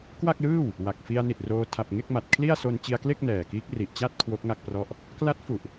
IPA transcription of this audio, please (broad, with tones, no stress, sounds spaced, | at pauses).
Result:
k w a˥˩ k̚ l ɯː˥˩ w | w a˨˩ k̚ f i˧ a̯ n i˨˩ t̚ r oː˧ tʰ a˨˩ p̚ ŋ e˥˩ k̚ m a˨˩ t̚ kʰ l i˥˩ a̯ s o˧ n t͡ɕ i˧ a̯ k l e˥˩ k̚ n ɛː˨˩ k iː˦˥ k̚ r i˨˩ ʔ t͡ɕ a˥˩ t̚ kʰ w o˦˥ k̚ ŋ a˥˩ k̚ p r ɔ˥˩ ʔ | k l a˦˥ t̚ f u˨˩ ʔ